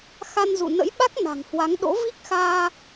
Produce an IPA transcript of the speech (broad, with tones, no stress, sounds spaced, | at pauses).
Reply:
x a˧ n z ṵ˧˨ n ə̰˧˥ j ɓ a˦˥ k̚ n a̤˨˩ ŋ h w a˨˦ ŋ ɗ o̰˧˥ v i˦˥ k̚ x aː˧